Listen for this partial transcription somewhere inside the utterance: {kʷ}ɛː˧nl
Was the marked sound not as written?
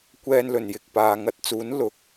no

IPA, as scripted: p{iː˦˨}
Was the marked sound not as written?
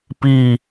no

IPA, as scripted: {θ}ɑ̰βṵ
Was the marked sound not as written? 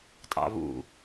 yes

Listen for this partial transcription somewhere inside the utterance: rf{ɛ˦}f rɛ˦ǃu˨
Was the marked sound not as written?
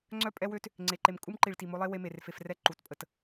yes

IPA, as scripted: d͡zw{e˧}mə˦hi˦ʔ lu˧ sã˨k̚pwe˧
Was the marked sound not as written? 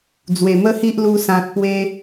yes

